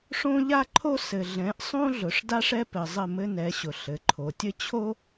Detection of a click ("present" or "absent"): present